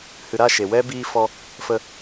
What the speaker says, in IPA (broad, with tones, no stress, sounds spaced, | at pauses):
h ɨ˨ ɾ a˦˨ ʃ e˨ w ɛ˦ b iː˧ f ɔ˧ | f ə˧